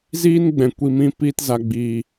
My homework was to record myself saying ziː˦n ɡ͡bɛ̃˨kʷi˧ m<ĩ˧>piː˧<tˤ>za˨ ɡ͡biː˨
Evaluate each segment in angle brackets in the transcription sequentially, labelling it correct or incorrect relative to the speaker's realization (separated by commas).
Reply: correct, incorrect